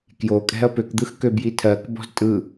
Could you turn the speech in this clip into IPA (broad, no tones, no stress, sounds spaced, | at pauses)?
k j o kʼ ɛ̤ ɐ̯ p ø k d̪ ɯ x k ø b j i tʰ ɜ k b ɔ̤ z tʼ ɯ